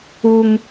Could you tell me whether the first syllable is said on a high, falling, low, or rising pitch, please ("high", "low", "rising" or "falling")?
high